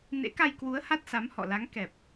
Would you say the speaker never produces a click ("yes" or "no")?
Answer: yes